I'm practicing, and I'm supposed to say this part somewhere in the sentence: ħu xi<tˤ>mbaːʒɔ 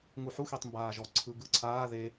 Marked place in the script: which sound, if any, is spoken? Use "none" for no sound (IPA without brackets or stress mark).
tˤ